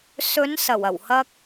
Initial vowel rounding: rounded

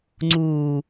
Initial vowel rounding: rounded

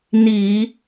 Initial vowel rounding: unrounded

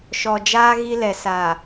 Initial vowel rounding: rounded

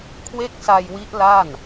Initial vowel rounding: unrounded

